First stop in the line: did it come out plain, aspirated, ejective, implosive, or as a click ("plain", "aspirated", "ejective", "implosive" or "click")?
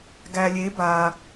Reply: plain